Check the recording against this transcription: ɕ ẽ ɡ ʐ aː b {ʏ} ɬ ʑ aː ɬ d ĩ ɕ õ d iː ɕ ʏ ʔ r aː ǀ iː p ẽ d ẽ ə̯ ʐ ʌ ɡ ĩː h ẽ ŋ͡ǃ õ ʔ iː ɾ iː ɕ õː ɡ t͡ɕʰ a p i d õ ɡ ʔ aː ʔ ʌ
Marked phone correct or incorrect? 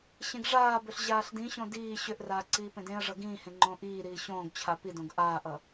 correct